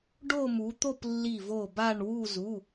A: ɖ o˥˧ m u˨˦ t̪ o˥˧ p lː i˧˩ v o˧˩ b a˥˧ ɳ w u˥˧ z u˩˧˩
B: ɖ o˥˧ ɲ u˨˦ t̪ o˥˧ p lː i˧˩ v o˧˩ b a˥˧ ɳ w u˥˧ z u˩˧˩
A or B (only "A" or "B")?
A